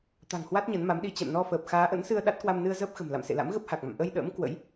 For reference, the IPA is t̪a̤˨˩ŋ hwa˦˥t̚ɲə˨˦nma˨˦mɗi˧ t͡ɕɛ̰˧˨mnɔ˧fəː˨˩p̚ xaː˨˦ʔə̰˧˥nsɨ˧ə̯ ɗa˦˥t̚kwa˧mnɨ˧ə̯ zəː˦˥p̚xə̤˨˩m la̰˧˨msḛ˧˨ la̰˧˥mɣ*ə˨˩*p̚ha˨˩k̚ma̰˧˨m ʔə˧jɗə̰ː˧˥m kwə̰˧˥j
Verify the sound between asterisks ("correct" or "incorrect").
incorrect